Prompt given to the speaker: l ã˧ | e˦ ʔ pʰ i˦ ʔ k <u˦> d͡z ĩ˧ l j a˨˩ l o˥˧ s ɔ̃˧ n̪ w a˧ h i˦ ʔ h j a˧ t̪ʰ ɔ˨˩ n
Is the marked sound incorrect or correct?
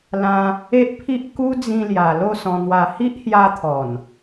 correct